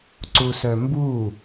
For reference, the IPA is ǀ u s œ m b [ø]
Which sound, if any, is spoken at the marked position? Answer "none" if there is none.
u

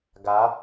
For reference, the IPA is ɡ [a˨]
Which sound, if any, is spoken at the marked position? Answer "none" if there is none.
a˨˦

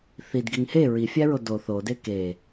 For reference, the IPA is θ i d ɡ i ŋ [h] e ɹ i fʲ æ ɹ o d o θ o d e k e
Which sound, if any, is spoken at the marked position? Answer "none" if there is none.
h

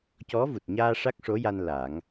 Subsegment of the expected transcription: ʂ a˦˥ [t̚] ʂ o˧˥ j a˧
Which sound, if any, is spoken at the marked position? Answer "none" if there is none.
k̚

